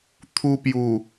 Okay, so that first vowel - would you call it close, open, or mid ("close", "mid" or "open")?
close